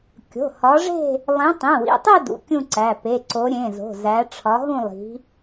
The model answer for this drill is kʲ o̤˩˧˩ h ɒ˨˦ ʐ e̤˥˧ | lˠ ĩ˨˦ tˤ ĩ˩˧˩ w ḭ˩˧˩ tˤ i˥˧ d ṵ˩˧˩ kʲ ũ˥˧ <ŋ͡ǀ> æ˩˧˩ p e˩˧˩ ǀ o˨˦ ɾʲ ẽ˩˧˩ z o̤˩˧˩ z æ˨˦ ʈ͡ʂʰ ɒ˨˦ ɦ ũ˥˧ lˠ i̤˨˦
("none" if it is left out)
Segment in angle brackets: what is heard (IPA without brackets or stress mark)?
ǀ